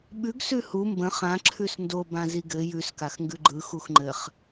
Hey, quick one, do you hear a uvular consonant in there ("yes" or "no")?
yes